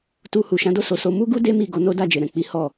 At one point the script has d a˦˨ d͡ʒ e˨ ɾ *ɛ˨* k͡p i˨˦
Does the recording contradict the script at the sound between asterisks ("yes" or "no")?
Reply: yes